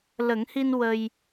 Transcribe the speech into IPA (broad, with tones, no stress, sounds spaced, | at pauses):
l ə˨˩˦ ŋ h i˧ n w ə˧ j